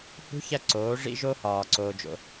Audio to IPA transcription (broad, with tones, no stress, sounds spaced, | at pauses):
h ṳ˧˥ ç æ˧ ǀ oː˩˧ ʐ ḭ˧ ʒ o˧ h ɒː˩ ǀ oː˧ d͡ʒ o̰˧